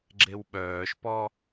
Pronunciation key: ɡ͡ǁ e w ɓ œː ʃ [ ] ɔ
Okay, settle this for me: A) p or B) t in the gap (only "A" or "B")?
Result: A